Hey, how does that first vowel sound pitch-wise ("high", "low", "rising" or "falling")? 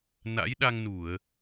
rising